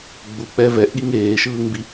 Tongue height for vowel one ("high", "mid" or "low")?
high